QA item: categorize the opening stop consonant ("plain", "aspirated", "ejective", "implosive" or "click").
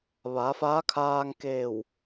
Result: aspirated